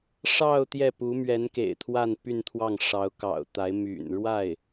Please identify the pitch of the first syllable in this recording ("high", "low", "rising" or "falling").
falling